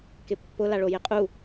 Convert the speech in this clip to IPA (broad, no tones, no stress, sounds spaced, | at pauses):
k ɪ pː ʊ l a ɭ o j ɪ qʼ u